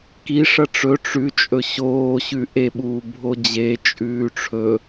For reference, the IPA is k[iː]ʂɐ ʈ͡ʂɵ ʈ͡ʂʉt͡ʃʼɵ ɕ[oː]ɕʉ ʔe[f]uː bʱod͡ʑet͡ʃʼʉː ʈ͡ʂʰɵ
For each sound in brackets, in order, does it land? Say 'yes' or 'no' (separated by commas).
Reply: no, yes, no